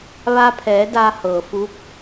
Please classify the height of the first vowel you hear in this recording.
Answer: low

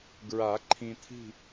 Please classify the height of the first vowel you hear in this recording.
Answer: low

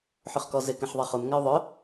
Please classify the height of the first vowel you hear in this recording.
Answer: high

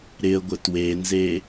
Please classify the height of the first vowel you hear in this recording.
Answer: high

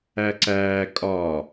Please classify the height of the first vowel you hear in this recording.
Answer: low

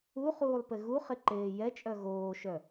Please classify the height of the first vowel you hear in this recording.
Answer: high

